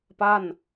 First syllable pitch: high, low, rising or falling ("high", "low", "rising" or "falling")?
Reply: falling